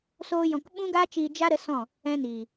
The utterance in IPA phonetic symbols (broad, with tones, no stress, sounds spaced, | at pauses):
s oː˧ j ɔ̃˨ k ɓ ũ˦ ɡ aː˦ t͡ʃ iː˧ d͡ʒ a˦ ɾ ə˨˦ s ɔ̃˦˨ | ɛ̃˧ n iː˨